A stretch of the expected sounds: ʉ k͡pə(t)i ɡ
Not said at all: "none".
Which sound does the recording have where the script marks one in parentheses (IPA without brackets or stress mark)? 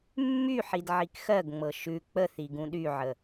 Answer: θ